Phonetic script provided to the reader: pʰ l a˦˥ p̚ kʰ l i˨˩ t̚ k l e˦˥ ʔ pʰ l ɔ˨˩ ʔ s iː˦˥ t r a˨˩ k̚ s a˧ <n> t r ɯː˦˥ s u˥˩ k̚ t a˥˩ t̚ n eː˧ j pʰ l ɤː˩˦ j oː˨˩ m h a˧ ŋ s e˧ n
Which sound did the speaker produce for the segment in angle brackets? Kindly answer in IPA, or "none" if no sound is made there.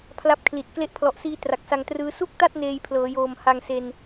ŋ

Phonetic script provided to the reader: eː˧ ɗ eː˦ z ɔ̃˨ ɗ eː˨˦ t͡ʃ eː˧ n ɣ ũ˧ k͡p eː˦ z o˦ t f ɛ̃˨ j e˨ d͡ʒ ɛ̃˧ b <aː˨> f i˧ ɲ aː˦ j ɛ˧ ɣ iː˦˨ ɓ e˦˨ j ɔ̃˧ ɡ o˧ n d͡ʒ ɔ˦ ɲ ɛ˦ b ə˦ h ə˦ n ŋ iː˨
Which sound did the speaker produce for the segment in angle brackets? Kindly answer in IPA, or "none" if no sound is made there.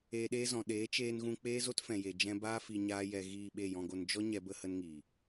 aː˦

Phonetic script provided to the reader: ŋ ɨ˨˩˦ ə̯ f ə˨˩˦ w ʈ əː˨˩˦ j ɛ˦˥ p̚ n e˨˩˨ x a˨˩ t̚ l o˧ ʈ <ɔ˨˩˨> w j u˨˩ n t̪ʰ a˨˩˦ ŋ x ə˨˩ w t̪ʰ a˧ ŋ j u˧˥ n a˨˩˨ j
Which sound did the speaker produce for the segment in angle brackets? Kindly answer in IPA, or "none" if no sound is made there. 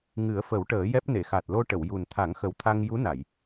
ə˨˩˨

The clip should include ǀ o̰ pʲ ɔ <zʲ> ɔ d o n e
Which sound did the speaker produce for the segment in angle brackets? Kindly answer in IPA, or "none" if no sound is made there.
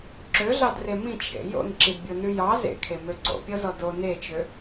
z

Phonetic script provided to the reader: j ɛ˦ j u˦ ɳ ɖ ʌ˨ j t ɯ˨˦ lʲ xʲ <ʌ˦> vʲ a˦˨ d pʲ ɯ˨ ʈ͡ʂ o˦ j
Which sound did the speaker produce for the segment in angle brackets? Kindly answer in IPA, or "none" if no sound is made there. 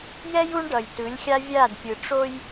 a˦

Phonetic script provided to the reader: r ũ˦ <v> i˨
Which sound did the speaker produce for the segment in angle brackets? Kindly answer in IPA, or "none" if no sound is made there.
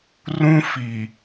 f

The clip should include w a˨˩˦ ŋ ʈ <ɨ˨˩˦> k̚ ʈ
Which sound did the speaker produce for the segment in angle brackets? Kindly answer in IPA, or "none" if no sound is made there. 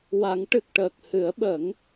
ɨ˨˩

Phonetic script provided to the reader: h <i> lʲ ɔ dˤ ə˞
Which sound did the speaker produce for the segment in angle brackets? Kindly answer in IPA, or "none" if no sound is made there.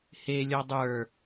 e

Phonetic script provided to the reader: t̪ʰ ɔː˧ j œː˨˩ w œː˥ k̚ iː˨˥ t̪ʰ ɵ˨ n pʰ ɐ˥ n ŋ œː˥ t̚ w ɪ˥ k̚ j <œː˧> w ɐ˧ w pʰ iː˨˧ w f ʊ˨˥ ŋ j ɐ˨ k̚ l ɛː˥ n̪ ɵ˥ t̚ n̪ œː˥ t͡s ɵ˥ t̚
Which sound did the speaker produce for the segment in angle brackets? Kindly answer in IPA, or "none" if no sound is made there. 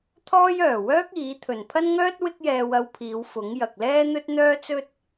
ɛː˧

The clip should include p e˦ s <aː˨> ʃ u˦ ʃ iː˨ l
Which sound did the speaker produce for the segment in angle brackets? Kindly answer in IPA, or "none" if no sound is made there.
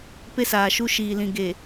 aː˨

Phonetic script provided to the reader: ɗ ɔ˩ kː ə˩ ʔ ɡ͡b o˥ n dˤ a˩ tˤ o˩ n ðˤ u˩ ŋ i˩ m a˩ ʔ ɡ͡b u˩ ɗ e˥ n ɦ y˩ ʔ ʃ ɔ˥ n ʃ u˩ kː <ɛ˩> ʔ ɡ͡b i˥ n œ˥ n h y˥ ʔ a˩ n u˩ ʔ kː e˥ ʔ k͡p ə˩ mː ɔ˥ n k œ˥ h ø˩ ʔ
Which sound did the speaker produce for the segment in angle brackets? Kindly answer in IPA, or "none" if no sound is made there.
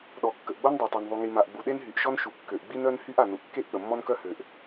ø˩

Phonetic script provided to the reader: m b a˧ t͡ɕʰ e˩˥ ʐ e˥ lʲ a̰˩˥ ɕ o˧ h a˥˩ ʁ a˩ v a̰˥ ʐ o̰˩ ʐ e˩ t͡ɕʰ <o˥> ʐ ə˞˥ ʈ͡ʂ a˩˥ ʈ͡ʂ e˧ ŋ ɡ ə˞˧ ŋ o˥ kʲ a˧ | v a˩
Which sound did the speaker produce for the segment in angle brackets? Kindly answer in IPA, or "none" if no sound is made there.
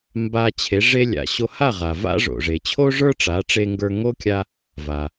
o˥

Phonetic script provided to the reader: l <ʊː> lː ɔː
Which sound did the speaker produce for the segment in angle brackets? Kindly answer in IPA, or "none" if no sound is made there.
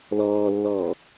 ɔː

